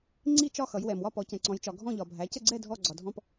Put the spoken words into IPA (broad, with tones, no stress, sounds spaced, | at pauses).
ŋ͡ǀ i˥˨ t͡ʃ ɒ˥˨ x ʌ˩˧ j w ɛ˩ m w ɒ˥˨ p ɔ˩˧ c ɛ̃˩ ǀ ɔ̃˩˧ j t͡ʃ ɒ˩ ɡʱ ɔ̃˥˨ ʎ ɒ˩ bʱ æ˩˧ c ə˥˨ ɡ͡ǀ ɛ˥˨ dʱ ɔ˥˨ ɡ͡ǀ ɒ˩ dʱ ɔ̃˥˨ p